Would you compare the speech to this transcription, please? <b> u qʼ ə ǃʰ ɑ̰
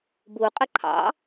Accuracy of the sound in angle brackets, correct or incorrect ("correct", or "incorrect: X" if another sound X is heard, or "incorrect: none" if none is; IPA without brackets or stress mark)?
correct